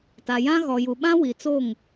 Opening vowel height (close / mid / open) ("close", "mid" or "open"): open